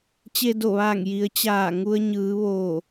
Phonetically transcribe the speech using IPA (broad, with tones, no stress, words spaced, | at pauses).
t͡ɕe˧do˧˩ʋaː˧˩ŋ ji˩˧ə̯t͡ɕaː˧˩ ŋu˧ə̯ɲɯː˩˧ ʋoː˧˩